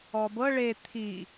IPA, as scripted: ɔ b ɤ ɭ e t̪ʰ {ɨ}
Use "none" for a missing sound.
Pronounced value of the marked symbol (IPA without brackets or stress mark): i